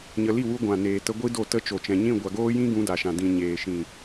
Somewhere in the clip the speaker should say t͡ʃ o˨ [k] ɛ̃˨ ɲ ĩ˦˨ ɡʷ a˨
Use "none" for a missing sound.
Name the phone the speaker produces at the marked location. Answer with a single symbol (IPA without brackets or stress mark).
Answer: t͡ʃ